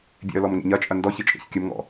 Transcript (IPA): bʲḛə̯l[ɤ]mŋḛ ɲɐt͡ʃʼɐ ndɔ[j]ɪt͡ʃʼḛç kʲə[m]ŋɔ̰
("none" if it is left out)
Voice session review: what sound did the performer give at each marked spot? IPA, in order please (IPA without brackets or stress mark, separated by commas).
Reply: ɔ, ç, m